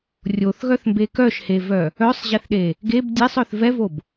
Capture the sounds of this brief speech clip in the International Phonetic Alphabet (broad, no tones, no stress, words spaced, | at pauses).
rʲoθɣœθmbe kœʃhevœ | œsˤʑeθɗe | ɡeb dʲesˤœθ vɛvob